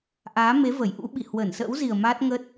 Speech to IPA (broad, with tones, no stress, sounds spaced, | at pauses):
ʔ aː˨˦ m e˨˦ v ə˧˩ j ʔ ṵ˧˥ ɓ i˧˩ h w ə˧˩ n s ə̰ː˧˥ w z i˨˩ ə̯ m aː˦˥ t̚ ŋ ə˦˥ t̚